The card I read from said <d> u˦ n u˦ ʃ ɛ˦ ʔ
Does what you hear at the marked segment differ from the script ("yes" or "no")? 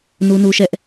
yes